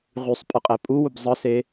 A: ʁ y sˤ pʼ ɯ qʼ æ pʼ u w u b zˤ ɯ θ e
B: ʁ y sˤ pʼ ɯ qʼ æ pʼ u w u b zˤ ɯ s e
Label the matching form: B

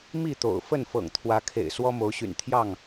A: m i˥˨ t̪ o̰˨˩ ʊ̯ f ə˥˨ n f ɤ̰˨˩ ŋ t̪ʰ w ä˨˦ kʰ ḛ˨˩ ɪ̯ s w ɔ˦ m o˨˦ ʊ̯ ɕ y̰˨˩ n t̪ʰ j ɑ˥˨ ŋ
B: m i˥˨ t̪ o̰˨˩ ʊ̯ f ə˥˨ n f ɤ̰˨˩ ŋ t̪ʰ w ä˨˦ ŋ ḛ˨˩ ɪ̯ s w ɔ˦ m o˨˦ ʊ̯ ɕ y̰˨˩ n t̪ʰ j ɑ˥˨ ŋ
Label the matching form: A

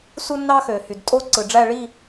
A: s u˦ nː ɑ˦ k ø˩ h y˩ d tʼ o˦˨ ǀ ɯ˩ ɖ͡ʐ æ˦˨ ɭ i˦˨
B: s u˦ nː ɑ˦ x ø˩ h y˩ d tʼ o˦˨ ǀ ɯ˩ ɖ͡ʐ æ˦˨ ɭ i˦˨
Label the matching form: B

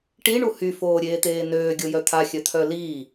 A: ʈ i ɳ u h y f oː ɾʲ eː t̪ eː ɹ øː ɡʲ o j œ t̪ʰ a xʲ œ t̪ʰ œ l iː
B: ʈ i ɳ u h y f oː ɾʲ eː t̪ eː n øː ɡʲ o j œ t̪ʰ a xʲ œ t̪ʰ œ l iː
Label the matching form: B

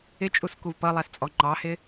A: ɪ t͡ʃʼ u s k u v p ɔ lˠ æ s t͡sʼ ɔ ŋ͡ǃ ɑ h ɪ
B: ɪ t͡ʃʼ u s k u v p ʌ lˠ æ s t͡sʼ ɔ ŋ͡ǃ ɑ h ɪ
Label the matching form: B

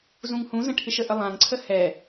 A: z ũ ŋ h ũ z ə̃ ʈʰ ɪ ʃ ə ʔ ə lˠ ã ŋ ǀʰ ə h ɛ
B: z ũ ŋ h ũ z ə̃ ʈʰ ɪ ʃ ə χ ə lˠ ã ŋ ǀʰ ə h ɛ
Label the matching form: A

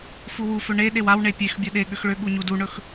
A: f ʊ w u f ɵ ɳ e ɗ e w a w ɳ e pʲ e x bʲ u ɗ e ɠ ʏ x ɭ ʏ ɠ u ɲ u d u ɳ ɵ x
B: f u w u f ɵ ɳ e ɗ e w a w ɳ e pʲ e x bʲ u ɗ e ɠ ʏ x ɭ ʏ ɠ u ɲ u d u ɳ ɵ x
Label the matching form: B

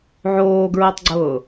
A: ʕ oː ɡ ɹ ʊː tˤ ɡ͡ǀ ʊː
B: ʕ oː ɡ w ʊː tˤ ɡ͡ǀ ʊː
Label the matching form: A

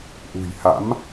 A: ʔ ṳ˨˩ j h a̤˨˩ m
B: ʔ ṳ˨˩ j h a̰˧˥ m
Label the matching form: B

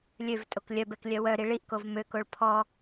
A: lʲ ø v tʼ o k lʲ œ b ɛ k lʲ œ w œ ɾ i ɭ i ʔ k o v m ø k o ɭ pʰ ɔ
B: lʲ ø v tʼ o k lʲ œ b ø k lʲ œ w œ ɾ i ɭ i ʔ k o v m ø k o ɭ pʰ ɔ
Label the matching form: A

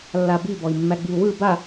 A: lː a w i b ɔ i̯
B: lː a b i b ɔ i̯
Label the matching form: B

